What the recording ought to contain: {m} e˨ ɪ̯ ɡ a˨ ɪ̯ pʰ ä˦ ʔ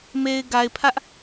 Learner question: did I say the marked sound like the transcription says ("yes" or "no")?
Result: yes